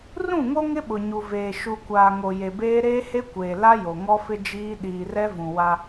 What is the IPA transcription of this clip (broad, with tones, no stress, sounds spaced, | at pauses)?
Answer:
r ũ˦˨ ŋ o˦ ŋ ɪ˦ ɓ ʊ˨ ɲ u˨ v eː˨ ʃ u˨ kʷ aː˨ ŋ o˨ j e˨ b eː˦ ɾ eː˦ h e˦ kʷ eː˨ l a˦ j o˨ ŋ ɔ˦ f ɪ˦ d͡ʒ iː˦ ɗ iː˨ r ɛ˦ v ũ˨ w a˦